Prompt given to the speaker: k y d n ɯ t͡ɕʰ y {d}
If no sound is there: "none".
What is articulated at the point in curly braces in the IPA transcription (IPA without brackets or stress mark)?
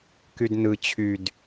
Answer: d